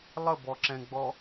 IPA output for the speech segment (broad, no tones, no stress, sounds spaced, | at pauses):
lˠ ə b ɔ ǁ ɛ̃ ɡ͡b ɔ